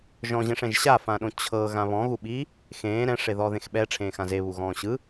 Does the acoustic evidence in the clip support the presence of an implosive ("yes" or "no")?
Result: yes